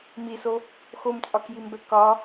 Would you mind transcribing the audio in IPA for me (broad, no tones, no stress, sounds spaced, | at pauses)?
m i s o | x o m t͡sʼ ɒ k j i m b ɛ k ɒ